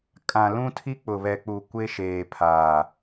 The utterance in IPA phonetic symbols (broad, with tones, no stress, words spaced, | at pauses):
kʼã˨lũ˦ tʰi˦k͡pʊ˨βɛ˨k͡pu˨ kʷe˦ʃeː˨pʰaː˨